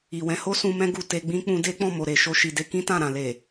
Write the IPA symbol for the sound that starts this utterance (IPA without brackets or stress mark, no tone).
i